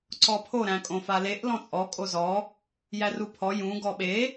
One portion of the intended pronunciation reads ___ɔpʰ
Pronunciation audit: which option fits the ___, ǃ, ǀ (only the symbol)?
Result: ǀ